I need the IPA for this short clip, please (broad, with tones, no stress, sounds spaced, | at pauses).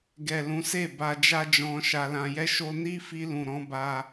ɡ ɛ˨ l ũ˨˦ s e˦˨ b a˧ d͡ʒ a˦ d͡ʒ ɔ̃˧ ʃ a˧ l ã˧ j ɛ˦ ʃ o˧ n i˦ f i˧ l ũ˨ ɾ ɔ̃˨˦ b a˧